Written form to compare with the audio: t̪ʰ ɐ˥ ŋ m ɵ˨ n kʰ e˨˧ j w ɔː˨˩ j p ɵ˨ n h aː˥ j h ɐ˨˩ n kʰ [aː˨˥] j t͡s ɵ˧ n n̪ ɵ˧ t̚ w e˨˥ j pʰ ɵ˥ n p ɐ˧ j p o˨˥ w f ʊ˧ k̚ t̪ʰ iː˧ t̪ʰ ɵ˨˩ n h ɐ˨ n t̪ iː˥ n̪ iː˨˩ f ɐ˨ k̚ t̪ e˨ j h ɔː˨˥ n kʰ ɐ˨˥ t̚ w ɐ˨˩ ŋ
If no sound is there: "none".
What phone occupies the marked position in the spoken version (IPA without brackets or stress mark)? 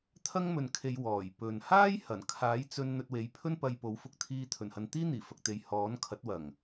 aː˨˥